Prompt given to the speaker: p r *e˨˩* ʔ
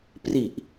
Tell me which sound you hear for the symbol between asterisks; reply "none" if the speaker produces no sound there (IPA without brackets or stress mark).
i˨˩